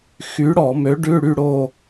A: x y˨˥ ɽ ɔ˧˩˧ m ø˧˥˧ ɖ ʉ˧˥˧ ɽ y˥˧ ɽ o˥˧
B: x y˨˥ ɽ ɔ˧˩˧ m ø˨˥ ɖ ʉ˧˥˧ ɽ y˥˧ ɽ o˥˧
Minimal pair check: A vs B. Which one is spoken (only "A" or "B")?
B